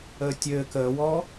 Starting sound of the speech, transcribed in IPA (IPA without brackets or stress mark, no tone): əː